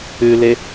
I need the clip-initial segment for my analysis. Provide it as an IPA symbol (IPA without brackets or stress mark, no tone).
ʉ